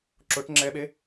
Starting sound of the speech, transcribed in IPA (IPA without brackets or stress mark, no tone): ǁ